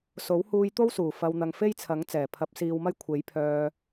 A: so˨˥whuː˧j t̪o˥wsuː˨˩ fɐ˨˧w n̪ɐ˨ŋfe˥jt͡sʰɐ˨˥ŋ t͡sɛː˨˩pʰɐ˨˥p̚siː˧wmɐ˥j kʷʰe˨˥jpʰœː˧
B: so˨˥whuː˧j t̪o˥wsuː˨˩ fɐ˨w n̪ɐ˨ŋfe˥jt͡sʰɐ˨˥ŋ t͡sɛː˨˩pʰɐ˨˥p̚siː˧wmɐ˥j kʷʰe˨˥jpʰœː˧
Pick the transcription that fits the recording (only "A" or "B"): B